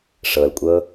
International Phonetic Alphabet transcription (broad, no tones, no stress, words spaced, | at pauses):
ʂɤlkʷʼɤ